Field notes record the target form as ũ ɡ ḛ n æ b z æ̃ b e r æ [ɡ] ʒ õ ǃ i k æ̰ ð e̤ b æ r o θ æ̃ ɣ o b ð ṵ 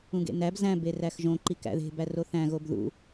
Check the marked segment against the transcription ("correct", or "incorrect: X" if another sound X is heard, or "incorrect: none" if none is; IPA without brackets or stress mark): incorrect: x